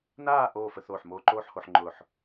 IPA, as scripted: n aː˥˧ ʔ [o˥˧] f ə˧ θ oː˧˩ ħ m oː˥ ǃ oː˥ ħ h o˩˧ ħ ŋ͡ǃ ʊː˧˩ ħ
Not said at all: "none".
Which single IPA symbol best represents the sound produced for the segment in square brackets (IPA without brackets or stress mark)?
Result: oː˥˧